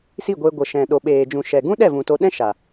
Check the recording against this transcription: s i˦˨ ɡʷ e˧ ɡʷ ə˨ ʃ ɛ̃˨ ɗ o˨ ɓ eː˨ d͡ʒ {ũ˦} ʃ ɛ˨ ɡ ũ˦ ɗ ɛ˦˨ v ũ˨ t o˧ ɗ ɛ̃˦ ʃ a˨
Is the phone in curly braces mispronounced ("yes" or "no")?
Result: yes